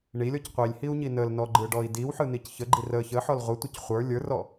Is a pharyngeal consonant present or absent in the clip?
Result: present